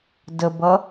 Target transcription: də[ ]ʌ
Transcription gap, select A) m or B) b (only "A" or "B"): B